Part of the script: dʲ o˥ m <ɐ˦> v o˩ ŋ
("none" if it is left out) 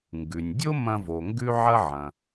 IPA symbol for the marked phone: ɐ̃˦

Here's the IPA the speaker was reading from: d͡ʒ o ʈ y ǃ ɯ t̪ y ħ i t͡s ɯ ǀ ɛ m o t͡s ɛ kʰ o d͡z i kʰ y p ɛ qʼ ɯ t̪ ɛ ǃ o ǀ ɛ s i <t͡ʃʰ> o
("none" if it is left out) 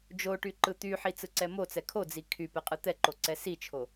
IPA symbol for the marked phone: t͡ʃʰ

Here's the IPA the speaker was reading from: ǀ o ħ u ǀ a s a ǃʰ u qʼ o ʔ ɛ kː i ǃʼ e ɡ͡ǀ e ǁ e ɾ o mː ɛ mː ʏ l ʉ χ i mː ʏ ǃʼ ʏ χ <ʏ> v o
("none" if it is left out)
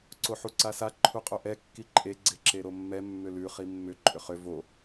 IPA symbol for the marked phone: ʏ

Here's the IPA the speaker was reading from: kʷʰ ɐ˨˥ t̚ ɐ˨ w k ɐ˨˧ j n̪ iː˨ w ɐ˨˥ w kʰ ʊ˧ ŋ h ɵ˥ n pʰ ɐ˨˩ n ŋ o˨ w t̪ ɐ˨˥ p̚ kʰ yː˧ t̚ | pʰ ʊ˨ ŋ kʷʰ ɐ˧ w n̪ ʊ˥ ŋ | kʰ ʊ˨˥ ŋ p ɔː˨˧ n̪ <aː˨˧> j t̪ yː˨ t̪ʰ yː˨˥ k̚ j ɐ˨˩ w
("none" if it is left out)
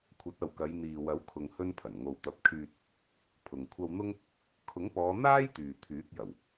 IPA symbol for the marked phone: aː˥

